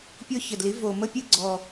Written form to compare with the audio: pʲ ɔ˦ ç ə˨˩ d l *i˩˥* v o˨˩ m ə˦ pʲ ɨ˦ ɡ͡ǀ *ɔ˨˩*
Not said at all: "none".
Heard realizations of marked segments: i˩˥, ɔ˨˩

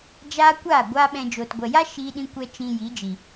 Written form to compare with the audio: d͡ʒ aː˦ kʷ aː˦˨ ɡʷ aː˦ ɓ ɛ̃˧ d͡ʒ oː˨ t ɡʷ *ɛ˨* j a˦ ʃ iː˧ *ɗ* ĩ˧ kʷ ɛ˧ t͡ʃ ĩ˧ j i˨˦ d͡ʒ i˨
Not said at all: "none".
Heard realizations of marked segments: ɛ˨, ɗ

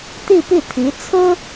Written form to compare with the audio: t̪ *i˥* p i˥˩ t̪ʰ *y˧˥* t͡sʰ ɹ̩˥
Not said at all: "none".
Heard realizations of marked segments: i˥˧, i˧˥

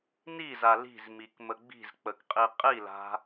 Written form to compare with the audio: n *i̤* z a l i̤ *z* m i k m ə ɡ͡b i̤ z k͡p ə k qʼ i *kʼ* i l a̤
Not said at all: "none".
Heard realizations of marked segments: i, z, qʼ

